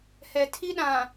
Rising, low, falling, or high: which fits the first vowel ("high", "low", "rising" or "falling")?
low